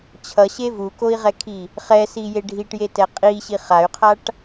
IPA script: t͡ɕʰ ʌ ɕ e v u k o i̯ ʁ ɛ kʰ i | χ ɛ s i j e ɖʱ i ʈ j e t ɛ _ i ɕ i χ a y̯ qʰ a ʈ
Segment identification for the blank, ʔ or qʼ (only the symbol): qʼ